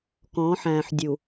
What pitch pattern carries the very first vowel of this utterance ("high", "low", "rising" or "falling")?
rising